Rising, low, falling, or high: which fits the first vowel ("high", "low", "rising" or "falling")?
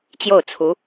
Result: falling